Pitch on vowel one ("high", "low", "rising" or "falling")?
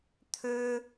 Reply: high